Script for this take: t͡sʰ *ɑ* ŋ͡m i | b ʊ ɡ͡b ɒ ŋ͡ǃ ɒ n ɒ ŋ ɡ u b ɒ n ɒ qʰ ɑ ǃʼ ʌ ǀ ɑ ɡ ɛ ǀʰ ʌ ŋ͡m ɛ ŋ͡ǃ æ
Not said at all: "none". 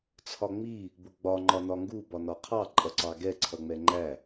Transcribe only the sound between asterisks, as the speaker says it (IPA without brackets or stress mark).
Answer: ɒ